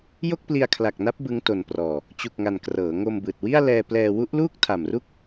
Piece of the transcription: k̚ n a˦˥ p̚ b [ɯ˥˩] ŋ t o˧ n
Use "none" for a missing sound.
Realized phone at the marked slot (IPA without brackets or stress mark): ɯ˦˥